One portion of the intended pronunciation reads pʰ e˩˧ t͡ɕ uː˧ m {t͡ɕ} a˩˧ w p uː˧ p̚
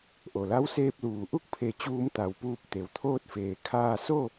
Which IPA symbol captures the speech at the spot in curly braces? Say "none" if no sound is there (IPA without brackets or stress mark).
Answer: t̪